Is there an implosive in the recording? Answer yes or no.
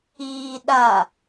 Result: yes